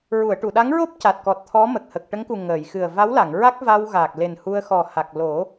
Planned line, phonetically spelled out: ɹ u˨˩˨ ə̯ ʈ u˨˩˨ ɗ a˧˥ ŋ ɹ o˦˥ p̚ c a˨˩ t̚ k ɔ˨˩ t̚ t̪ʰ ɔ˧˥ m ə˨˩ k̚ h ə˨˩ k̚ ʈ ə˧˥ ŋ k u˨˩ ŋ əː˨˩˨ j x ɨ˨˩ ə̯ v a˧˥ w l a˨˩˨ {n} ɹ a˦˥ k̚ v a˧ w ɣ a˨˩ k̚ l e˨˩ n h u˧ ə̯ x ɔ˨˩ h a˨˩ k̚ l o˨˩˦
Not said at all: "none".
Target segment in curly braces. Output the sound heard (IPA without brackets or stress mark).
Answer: ŋ